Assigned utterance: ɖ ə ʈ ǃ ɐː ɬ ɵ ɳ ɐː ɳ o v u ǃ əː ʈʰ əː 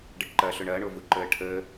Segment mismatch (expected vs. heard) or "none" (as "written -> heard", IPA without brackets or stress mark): none